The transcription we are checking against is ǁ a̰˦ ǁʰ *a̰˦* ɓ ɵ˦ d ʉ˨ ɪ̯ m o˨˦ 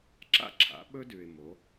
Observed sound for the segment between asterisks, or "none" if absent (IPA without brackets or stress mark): a̰˨˦